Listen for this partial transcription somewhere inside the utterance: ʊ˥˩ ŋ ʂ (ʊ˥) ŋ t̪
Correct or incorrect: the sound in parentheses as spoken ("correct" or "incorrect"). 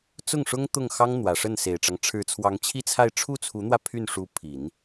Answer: correct